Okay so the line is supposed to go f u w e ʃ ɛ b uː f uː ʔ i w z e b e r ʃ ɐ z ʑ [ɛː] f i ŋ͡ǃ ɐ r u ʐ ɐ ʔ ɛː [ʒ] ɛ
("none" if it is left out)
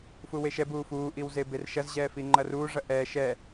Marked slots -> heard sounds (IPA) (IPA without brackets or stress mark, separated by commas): ɛː, ʃ